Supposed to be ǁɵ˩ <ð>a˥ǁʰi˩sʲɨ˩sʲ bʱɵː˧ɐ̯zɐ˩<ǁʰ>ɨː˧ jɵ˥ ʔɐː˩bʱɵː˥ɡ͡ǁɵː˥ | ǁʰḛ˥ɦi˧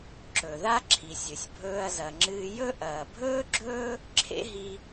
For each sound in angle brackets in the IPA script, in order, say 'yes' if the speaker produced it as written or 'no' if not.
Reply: yes, no

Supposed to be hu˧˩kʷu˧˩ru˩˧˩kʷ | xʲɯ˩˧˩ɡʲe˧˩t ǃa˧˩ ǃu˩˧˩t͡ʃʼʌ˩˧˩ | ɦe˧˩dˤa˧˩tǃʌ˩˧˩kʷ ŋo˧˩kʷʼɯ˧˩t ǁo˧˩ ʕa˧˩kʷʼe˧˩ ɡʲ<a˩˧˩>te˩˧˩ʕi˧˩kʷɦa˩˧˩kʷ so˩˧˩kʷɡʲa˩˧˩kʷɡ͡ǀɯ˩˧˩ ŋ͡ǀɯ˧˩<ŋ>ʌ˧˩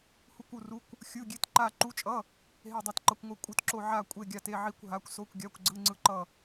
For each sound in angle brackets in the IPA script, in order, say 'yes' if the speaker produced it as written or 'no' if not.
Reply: no, no

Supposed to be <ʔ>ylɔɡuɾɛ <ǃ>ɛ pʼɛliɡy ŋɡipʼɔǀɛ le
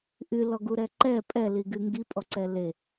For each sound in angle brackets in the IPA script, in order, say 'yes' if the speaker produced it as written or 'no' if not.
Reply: yes, yes

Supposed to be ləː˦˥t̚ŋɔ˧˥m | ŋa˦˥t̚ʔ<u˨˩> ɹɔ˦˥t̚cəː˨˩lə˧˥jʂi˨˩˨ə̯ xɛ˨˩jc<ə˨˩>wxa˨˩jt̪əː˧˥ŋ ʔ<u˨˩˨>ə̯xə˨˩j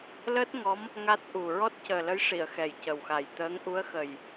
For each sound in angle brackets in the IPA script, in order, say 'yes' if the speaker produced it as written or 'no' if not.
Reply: yes, yes, no

